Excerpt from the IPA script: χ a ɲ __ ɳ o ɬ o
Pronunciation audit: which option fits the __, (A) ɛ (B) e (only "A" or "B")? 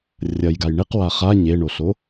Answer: B